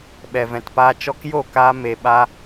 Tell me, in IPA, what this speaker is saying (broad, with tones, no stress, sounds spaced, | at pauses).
ɓ ɛ˨ v ɛ̃˨ t p aː˧ t͡ʃ ɔ˧ k j o˦˨ k aː˧ m e˨ ɓ a˧